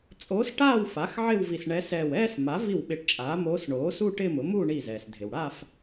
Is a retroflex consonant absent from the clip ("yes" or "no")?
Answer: no